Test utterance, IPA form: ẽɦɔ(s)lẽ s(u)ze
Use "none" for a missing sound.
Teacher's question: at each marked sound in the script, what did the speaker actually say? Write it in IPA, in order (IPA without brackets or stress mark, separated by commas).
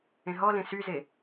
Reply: none, y